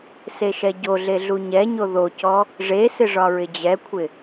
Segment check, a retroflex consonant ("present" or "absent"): present